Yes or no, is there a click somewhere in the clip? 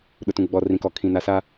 no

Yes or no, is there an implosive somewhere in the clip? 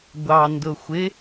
no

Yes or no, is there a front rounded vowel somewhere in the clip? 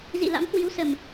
no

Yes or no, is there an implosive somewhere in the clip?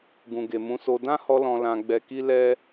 no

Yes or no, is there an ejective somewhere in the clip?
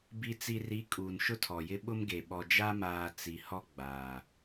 yes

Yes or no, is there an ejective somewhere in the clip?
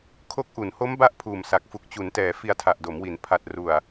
no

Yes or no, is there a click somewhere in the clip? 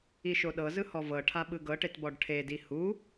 no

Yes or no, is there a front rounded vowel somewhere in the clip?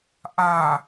no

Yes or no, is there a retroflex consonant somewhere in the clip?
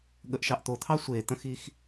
no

